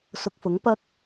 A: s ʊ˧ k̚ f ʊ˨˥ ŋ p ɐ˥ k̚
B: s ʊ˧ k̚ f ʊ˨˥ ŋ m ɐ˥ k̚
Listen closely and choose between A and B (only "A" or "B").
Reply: A